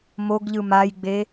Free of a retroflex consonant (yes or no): yes